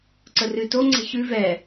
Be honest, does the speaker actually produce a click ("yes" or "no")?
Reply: yes